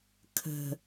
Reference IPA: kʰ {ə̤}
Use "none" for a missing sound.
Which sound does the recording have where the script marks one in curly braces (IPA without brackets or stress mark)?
ə̤